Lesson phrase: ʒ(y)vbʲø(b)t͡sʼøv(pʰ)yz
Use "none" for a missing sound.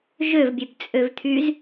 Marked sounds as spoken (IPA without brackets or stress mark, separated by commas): ø, b, t̪ʰ